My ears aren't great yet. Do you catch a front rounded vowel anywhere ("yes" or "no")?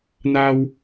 no